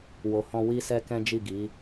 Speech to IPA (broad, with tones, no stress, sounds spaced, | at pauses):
w o˨ h ɔ̃˧ w i˦ s ɛ˦ k ɛ̃˦ d͡ʒ i˦˨ ɡ i˨˦